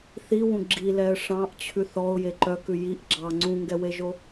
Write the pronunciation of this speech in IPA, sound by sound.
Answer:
θ i w ũ ɡ͡ǁ i l ɛ ə̯ ʂ ɑ̃ ʔ t͡ɕʰ ʉ θ ɔ ʊ̯ j e ǃ œ k ʉ j i ʔ ɡ͡ǁ ɑ ŋ͡ǀ ũ ŋ ɡ ɛ w e ʒ o

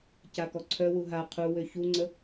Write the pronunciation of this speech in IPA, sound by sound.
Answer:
c a k ɔ ǀʰ œ w u ɦ a qʰ u w ø ç u ŋ͡ǀ ə

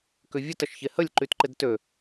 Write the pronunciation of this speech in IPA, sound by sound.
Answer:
k ʏ vʲ ə t ɐ ʃ ç e h ə lʲ ǃ y t ǃ ɪ d t ø

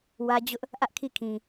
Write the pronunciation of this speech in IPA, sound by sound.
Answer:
w ä˦ d͡ʑ ʊ˦ ʔ | ʔ ä˦ ʔ kʰ i˦˨ kʰ ĩ˨

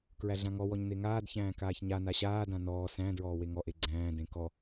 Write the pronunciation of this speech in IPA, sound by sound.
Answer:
k ɹ æ ɮ ã ŋ ɔ w ɔ ɲ n e ŋ aː d ç æ̃ː k aː ç ɲ a n a ɕ aː d ã n ɔː s æ̃ d ɹ ɔː w e ŋ ɔ ʔ e ɡ͡ǀ æ̃ː d ẽ k ɔ

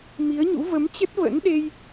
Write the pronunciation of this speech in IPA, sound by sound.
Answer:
m i˨˦ ə̯ ɲ ṵ˧˥ v ə˨˦ m t͡ɕ ə˦˥ t̚ v ə̰˧˥ n ɗ e˧ j

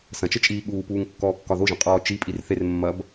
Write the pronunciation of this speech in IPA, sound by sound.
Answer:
s ɐ̃ t͡ʃ ə t͡ʃʼ iː ɠ uː p uː ŋ kː ɔː kː ɒ ð o ʒ ɐ̃ qʼ ɔː t͡ʃ i pʼ i r θ e r mː ɐ b

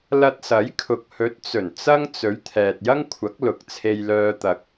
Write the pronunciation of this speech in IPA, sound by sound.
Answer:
l ɐ˧ t̚ s ɐ˨˥ j kʰ ʊ˨ k̚ h ɵ˨˥ t̚ t͡s ɵ˨˩ n t͡s ɐ˥ ŋ t͡s ɵ˨˥ ɥ t̪ʰ ɛː˨ t̚ j ɐ˥ ŋ kʷʰ ɐ˨˥ k̚ l ʊ˨˥ k̚ t͡sʰ e˧ j l œː˧ t̪ ɐ˨ k̚

